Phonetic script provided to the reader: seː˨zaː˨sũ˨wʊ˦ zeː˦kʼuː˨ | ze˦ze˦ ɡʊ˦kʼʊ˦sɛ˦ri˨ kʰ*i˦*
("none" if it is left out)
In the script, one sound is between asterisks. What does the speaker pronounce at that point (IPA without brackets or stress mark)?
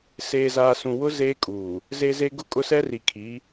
i˨˦